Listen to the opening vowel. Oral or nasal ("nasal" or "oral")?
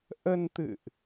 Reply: oral